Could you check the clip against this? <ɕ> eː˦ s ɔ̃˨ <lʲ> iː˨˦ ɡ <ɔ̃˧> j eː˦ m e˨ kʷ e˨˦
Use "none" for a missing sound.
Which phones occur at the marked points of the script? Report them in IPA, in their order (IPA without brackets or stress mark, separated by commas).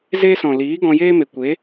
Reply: z, l, ɔ̃˧